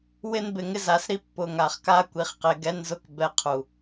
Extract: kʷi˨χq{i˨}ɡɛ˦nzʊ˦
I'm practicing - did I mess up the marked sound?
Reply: yes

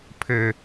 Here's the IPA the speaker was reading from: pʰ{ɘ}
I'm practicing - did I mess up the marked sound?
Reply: no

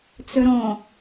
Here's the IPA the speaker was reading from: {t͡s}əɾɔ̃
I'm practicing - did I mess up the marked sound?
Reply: no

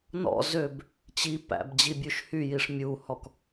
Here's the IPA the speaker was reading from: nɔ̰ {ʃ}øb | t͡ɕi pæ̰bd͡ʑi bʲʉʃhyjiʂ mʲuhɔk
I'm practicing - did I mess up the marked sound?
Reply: yes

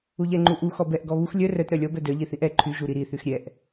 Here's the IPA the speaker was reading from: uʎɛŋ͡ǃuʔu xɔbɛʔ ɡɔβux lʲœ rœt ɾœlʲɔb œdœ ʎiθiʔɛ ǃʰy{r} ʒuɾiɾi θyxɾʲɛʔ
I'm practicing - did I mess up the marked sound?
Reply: yes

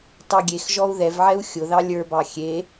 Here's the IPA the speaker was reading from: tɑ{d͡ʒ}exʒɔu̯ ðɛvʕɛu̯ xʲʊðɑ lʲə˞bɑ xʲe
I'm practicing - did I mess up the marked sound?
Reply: yes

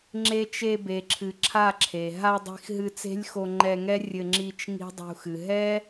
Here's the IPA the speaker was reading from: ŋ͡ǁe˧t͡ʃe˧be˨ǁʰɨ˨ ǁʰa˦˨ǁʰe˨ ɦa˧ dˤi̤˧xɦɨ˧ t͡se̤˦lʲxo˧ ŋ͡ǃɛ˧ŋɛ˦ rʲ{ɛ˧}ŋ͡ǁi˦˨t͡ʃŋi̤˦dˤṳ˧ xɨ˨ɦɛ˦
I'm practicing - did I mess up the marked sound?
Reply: yes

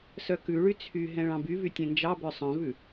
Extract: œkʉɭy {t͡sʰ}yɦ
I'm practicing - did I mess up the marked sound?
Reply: no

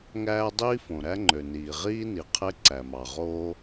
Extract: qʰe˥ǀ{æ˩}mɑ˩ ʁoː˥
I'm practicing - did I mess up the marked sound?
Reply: no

